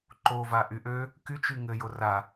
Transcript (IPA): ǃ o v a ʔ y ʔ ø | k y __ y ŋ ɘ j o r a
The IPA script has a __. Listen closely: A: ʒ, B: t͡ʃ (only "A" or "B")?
B